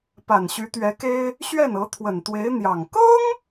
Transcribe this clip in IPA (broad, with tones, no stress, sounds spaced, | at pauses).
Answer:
p a˨˩ n ɕ y˧˥ t̪ ɥ ɛ˧˥ k e˥ ɪ̯ | ɕ ɥ ɛ˥˩ n ɤ˧˥ t̪ʰ w ə˨˩ n t̪ w e˧˥ ɪ̯ n̪ j ɑ˨˩ ŋ k ɤ˥ ŋ